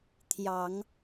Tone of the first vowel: low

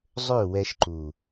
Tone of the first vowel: falling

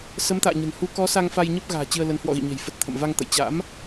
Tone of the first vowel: rising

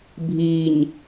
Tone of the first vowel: low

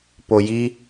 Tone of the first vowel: low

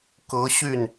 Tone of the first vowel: rising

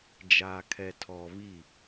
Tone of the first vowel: low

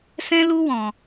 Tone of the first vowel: high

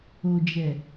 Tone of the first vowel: low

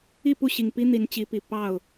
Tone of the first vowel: falling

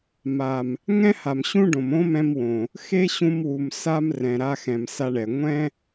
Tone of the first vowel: low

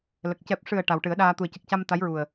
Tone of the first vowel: low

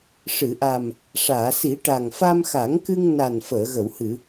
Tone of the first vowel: low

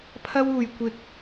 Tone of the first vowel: high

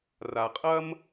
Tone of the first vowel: low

